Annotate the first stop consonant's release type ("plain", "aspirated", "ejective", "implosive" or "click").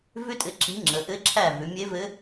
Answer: ejective